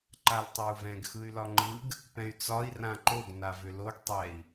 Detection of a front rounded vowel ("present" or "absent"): present